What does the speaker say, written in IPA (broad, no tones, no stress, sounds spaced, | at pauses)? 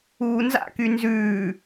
uː n z a̰ k y n z ʉː